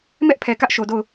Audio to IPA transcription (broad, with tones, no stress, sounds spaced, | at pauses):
m ɛ˦ ʔ pʰ ɛ˨ k ä˦ ʔ ʃ o˨ d o˦˨ ʊ̯